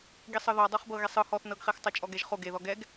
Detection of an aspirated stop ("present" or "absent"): absent